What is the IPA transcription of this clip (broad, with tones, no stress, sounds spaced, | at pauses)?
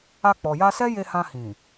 a˧ k͡p ɔ˨ j a˧ s ɛ˦ j e˧ h ã˧ h ĩ˨